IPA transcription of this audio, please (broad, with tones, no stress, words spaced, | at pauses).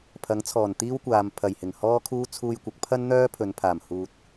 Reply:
pʰɐ˨˥ŋt͡sʰɔː˨˩nt̪iː˥wkʷaː˨m pʰɐ˨˩jhɪ˨˩ŋ hɔː˥kʰuː˥ t͡sʰuː˧jkʷɐ˨˥k̚pʰɐ˥nn̪œː˥ pʰɵ˨˧npʰaː˨˩m huː˨t̚